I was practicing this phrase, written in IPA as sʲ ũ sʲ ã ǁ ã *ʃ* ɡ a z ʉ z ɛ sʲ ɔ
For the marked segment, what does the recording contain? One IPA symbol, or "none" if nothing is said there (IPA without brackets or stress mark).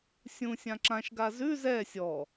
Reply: ʃ